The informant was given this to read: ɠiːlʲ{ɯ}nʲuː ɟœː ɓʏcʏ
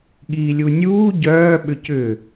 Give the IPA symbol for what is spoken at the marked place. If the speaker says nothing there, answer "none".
u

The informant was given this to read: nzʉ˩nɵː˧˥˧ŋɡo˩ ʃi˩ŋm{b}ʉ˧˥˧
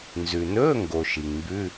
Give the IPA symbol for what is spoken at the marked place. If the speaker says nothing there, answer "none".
b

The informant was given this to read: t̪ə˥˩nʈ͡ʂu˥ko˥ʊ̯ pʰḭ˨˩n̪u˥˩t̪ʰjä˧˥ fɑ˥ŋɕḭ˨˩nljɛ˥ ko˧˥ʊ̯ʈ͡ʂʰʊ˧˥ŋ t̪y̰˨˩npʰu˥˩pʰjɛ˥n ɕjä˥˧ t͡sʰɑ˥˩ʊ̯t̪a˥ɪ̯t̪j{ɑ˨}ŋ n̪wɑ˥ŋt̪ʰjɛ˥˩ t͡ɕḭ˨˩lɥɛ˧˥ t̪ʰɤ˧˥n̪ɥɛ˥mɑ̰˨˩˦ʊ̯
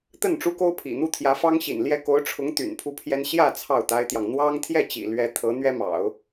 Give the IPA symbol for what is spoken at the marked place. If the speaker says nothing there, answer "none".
ɑ˨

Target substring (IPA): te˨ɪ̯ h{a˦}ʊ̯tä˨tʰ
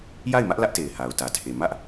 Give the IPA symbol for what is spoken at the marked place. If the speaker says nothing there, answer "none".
a˨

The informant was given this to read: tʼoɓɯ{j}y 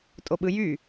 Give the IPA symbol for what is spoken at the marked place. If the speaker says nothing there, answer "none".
j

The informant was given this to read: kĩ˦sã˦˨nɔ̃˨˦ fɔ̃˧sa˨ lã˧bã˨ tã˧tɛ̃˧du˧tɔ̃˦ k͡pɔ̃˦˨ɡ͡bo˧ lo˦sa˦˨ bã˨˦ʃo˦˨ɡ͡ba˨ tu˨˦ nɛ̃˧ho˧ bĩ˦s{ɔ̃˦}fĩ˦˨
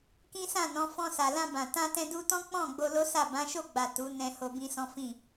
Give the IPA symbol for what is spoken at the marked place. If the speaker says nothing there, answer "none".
ɔ̃˦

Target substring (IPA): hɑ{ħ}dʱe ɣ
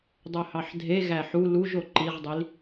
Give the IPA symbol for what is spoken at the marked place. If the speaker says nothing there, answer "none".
ħ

